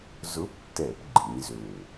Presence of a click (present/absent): present